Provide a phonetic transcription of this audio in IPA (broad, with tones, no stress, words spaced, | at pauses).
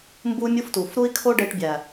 mbu˦mʲu˦ftu˨f ɾu˦i̯kʰo˦ɖe˧ʈbʲæ˨